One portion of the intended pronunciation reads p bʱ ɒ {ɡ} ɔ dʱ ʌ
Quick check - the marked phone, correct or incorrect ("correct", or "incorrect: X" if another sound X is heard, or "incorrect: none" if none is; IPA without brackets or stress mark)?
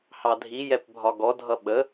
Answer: correct